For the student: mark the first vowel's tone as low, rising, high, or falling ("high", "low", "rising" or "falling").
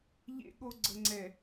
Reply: high